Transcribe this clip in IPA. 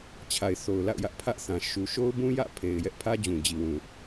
t͡ɕʰ a˨ ɪ̯ θ o˨ ʊ̯ l a̰˦˨ ʊ̯ j ä˦ ʔ pʰ ä˦ ʔ θ ã˨ ʃ u˨ ʃ o˦ ʊ̯ b ũ˦ j ä̰˦˨ pʰ e˨ ɪ̯ j ɛ˦ ʔ pʰ ä˦ d͡ʑ ũ˨ d͡ʑ i˨ w ũ˨

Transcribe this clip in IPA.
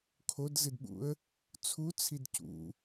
kʰ o d z ɨ d ɓ ṵ ə̯ | t͡sʰ u t͡sʰ i d c ṵ

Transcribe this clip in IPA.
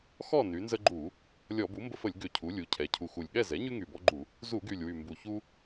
x ɔ˥˨ n y˩˧ n z ə˦ ɡ͡ǃ u˧˩˧ | lʲ ɔ˧˩˧ b u˩˥ m b ə˦ f ə˧˩˧ lʲ ɡ ʏ˨˩ cʰ u˩˧ lʲ u˩˧ cʰ ɛ˩˧ cʰ u˨˩ x u˨˩ lʲ ɠ ɛ˥˨ z ɛ˩˥ ɲ y˦ ŋ y˨˩ b ɔ˦ ɡ͡ǃ u˧˩˧ | z u˧˩˧ ɡ y˨˩ lʲ w y˨˩ m b u˨˩ ç u˦

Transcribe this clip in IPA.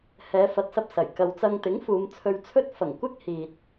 h ɛː˨˧ f ɐ˨˥ t̚ s ɐ˧ p̚ s ɐ˨˩ j k ɐ˨ w t͡s ɐ˧ ŋ t̪ ɪ˨˥ ŋ f uː˨˧ m t͡sʰ ɵ˧ ɥ t͡sʰ ɵ˥ t̚ f ɐ˨˩ ŋ kʷ ɪ˥ k̚ h iː˨ t̚

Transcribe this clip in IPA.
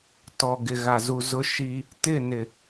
t ɔ˨ ɡ ɪ˨ ɣ a˨ z u˨ z ʊ˦ ʃ i˦ | t ɪ˦˨ n ɪ˨

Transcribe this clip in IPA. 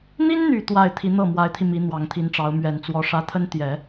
n̪ i˥ n n̪ y˨˩ t̪ w a˥˩ ɪ̯ t̪ʰ i˧˥ n̪ ɤ˥˩ m w a˧˥ ɪ̯ t̪ʰ i˧ m i˧˥ n̪ w ɑ˨˩ ŋ t̪ʰ i˧˥ n ʈ͡ʂ ɑ˧˥ ʊ̯ m ɥ ɛ˨˩ n t͡s w ɔ˧˥ ʂ ä˧˥ t̪ʰ ə˥ n t̪ j ɛ˨˩˦

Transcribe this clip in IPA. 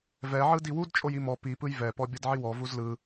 v ɛ ʕ ɯ d i w u d t͡ʃʼ o j i m ɔ p i p ɯ j v ɛ p ɔ bʲ ɤ d ʕ i w ɔ v u z l ɯ

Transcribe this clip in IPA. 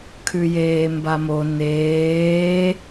kʰ ʉ j eː m b a m o n eː

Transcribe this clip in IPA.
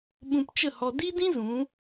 ɓ ũ˧ p t͡ʃ ə˦˨ h ɔ˧ d i˦ d ĩ˦ z ũ˨˦

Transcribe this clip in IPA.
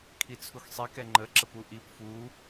kʰ i t͡sʰ u x sˤ i k ɛ ŋ͡ǃ ə ǁ ə p u ʔ i p f u

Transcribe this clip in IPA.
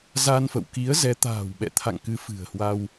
z a˧ n f ə̰˧˨ w k i˨˦ ə̯ z ɛ˨˦ t̪ a̤ː˨˩ w ɓ ɛ̰˧˨ t̪ʰ a̰˧˨ ŋ k ɨ˨˦ f ɨ̤˨˩ ə̯ h w a˧ w

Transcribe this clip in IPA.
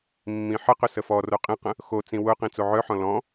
mː ĩ ħ ə q ʏ s ə f ɔ r o qʼ ĩ q ə̃ | x o t͡s ĩ w ʊ q ĩ t͡s o ʕ œ ħ ɔ̃ l ɔ̃

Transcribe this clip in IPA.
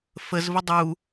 f ə z v ə dˤ u

